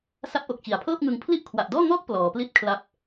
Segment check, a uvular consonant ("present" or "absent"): absent